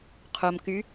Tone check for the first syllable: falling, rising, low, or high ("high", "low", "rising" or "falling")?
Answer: low